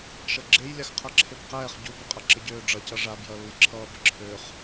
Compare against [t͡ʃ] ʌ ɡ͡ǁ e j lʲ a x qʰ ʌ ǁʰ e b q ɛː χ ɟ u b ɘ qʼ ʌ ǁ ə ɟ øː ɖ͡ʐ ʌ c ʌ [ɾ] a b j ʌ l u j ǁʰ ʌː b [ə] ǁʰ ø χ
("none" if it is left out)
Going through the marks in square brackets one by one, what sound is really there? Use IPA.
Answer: ʃ, ʐ, ə

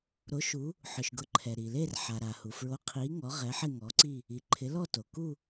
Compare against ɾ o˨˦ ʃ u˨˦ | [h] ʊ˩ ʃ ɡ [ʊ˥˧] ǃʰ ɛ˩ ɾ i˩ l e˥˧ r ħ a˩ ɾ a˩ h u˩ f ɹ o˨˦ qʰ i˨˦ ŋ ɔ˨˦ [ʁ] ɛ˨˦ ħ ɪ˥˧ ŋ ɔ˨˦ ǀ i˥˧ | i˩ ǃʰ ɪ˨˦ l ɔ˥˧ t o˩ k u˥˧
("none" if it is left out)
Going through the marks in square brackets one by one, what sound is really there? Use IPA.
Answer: ħ, ʊ˨˦, ʁ

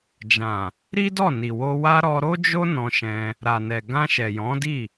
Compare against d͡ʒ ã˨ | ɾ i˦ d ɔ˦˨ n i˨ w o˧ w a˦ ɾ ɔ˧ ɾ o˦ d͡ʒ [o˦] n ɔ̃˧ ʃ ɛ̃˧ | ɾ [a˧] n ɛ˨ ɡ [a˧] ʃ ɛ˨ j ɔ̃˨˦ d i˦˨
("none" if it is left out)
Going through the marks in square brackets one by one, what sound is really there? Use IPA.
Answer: o˦, a˨, ã˧

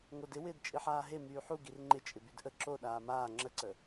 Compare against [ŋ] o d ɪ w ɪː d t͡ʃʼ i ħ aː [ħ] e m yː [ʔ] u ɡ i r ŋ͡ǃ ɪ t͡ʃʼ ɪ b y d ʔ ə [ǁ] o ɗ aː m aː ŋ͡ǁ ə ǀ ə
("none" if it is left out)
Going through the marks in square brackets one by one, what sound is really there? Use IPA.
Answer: ŋ, ɦ, ħ, ǁ

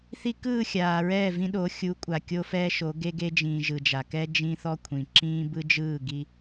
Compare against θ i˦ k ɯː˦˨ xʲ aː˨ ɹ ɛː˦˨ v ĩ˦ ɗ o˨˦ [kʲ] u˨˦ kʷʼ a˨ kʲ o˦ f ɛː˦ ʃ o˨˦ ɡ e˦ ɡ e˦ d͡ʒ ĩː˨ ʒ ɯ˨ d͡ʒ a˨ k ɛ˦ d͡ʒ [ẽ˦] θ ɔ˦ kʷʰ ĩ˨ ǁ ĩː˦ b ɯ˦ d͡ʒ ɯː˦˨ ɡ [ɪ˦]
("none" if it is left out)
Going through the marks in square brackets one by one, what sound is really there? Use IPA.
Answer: xʲ, ĩ˦, i˦

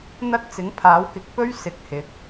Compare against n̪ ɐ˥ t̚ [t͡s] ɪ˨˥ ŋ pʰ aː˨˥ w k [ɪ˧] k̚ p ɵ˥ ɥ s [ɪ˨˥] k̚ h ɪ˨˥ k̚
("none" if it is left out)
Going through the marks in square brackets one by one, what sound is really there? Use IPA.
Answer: t͡s, ɪ˨˥, ɪ˨˥

